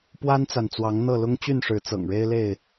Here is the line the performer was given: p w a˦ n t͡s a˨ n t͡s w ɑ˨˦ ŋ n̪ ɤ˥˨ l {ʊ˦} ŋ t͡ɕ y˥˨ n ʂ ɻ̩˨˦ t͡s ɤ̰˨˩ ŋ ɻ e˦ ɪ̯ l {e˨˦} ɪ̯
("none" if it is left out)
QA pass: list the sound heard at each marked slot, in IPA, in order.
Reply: ʊ˦, e˥˨

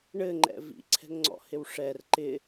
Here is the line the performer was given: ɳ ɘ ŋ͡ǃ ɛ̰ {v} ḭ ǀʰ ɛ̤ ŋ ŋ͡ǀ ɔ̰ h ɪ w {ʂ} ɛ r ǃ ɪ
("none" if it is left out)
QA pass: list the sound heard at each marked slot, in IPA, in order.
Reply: v, ʂ

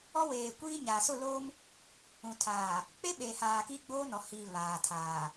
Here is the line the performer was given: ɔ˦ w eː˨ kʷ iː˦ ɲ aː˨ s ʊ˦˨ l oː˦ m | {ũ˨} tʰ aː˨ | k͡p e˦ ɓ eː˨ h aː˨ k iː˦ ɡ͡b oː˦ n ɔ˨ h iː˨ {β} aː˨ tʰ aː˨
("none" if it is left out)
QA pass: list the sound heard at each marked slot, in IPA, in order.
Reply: ũ˨, β

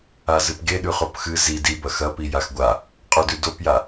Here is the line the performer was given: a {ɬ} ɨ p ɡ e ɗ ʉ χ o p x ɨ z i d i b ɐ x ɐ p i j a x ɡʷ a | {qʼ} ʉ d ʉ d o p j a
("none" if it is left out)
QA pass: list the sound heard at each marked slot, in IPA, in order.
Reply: z, qʼ

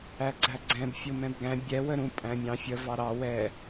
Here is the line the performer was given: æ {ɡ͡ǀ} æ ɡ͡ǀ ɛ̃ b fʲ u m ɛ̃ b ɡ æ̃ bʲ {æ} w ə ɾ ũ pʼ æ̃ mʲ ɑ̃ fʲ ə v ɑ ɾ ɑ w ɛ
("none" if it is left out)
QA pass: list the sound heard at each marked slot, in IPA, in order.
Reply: ɡ͡ǀ, ɛ

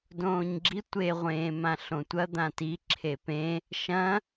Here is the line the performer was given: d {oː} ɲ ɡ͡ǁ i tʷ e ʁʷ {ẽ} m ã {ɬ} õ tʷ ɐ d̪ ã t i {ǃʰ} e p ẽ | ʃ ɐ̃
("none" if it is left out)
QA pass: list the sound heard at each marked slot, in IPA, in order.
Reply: õː, ẽː, ɬ, ǁʰ

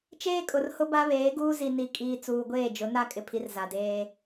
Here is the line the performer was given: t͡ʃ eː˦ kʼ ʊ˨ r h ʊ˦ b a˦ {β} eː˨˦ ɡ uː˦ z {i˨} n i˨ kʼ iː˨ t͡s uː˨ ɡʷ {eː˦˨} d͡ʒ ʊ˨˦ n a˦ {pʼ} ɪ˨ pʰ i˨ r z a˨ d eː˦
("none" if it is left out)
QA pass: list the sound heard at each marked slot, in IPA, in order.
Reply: β, i˨, eː˦˨, kʼ

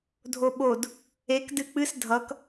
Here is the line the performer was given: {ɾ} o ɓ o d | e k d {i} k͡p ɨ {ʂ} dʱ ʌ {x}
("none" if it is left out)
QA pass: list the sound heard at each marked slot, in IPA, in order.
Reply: dʱ, ɨ, s, k

